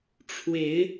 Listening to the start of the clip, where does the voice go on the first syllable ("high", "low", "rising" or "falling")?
rising